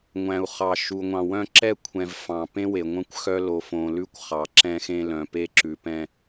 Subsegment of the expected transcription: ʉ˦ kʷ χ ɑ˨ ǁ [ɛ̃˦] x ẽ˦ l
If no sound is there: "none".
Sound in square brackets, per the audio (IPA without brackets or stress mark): ɛ̃˦